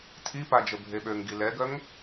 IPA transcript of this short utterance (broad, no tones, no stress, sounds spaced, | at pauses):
tʰ i p a d͡ʒ ə bʱ e ɓ ø ŋ ɡ i l ɛ ɡ œ ŋ